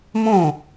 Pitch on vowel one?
falling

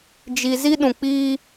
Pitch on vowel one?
low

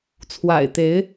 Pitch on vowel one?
low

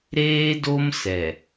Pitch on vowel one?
high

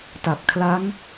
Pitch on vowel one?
low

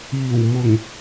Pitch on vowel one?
low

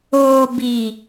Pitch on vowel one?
low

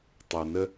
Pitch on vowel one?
low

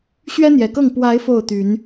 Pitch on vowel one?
high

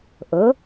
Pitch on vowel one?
rising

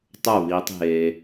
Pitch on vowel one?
falling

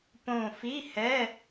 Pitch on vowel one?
low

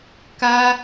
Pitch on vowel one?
high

